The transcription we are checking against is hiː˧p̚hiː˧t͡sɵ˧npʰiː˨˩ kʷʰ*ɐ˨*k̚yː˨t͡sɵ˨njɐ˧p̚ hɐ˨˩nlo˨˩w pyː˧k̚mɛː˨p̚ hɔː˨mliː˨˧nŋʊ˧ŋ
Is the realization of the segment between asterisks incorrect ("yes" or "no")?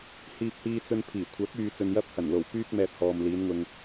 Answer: yes